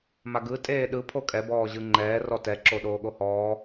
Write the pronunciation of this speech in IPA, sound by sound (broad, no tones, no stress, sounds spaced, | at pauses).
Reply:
m a ɡ ɯ tʼ eː ɗ ɯ pʰ o kʼ ɛ b ɔː ʑ ɯ ŋ͡ǃ ɛː r ɔ t ɛ ǁ o ɗ oː ɠ o h ɔː